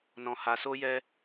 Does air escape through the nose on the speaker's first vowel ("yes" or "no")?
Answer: yes